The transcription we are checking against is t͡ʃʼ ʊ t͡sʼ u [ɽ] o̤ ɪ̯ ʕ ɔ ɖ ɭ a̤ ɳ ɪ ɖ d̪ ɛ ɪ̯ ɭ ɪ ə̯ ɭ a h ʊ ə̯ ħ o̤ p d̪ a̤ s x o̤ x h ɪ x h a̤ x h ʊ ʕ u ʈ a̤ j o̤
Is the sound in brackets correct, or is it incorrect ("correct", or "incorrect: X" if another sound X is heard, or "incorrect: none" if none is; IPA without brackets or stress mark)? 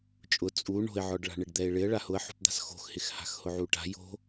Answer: incorrect: ɳ